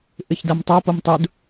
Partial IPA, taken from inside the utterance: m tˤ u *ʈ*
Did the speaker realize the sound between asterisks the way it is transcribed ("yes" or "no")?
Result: no